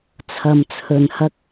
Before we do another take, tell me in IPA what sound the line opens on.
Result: t͡sʰ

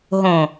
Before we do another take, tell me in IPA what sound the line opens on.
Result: ɦ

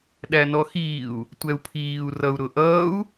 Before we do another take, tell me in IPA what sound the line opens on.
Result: ɗ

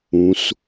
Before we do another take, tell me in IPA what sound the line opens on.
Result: ũ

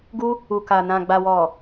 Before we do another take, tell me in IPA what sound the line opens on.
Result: ɡ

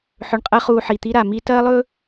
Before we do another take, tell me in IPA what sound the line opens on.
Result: ħ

